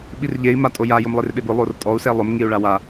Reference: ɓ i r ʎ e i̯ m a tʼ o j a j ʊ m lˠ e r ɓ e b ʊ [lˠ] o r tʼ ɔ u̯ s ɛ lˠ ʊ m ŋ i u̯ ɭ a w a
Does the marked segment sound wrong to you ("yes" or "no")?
no